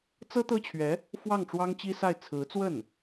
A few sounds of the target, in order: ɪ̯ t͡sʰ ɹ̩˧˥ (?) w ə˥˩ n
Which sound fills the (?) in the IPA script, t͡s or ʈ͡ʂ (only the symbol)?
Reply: t͡s